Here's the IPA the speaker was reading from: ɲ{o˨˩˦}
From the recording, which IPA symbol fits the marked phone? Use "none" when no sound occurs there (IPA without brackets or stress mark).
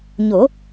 o˨˩˦